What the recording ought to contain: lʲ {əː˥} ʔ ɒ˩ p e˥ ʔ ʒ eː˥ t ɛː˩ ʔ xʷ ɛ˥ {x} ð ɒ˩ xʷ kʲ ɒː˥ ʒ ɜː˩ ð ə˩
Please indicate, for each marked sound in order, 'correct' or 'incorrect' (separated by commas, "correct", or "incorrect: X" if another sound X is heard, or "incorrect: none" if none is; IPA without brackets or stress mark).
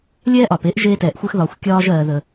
incorrect: ɛː˥, correct